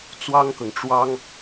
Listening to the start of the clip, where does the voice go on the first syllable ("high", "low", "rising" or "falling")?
high